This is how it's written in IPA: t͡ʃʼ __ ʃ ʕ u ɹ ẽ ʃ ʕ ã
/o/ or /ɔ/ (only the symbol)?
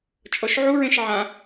ɔ